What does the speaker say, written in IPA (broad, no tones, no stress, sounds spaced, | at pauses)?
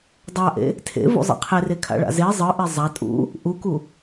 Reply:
dˤ a ʔ ḛ | tʰ ḛ v ṵ zˤ ḛ qʰ e r e kʰ a̰ ɭ a̰ z e zˤ ɯ ʔ e zˤ a tʼ ṵ | ʔ u k u